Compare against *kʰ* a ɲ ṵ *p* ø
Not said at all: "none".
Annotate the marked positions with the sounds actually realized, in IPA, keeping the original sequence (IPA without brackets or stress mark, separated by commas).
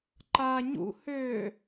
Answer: ǃ, h